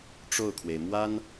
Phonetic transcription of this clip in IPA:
ʈ͡ʂo˥˩ʊ̯kʰwe˩ɪ̯mwa˥n

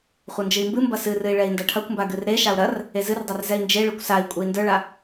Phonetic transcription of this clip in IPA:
χʷɐnd͡ʒɨi̯mbɨmbɐ sɨrɨi̯ ɭɛi̯ndɐʈʰɐkʷmba ɡɨrɾeʃau̯ ɾɐr | ezɨrdˤar zɛi̯nd͡ʒeɭɨkʷ sai̯ kʷʼei̯ndə˞ɭa

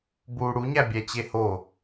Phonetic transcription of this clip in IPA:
bu ɽuɲæbʲæt͡ɕe ho

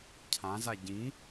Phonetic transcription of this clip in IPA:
cʰãza ɟĩ

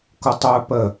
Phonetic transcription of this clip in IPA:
kʊtˤœ pə

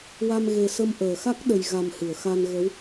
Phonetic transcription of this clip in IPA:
wa˧mɣe˨˩sə˧m ʔəː˨˩˨xa˦˥k̚ɗə˨˩j ɣa˨˩m hɨ˨˩˨ə̯xa˧nɣə˧˥w

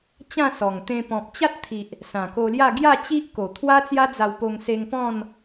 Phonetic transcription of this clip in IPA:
t͡ɕã˥˧sɔ˨˩ŋt̪ẽ˧ pɔ̃˨p̚t͡ɕa˦t̚t̪ʰi˨ʔ | sã˨˩ko˧lja˥˧ ɡja˥˧t͡ɕi˦ʔko˨˩ t̪ʰwa˦t͡sja˦d͡za˧wpo˧ŋ se˧ŋpɔ̃˥˧n

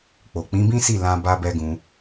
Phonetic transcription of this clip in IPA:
k͡po˨k͡pĩ˨˦bĩ˦si˦˨ lã˧ ba˦bɛ˦ɡũ˧

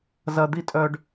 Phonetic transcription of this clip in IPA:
zɐ˦ d̪i˥tʼœ˥ɖ

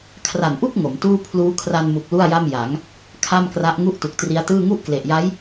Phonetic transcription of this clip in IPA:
kʰra˨˩nʔu˥˩k̚ ŋo˩˦mtuː˥˩ pʰluː˦˥kʰra˧nmu˨˩k̚ lu˥˩a̯ja˥˩mja˩˦ŋ | kʰa˥˩mkra˦˥ʔ ŋu˥˩ʔtu˨˩k̚tri˦˥a̯tɯː˥˩ ŋu˥˩ʔkle˨˩ʔja˦˥j

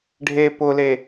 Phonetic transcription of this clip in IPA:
ɖʱe pʊle

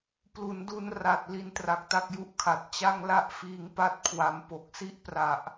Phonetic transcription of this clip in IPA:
plu˩˦ndu˧nra˨˩t̚ li˦˥ntra˨˩k̚ta˥˩k̚ju˥˩ʔ kʰa˨˩t̚ t͡ɕa˥˩ŋla˥˩ʔfiː˧ŋpa˥˩t̚ kʰwa˧m po˨˩k̚si˥˩ʔpra˨˩ʔ

